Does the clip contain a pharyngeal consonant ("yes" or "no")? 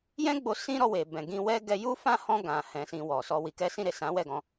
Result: no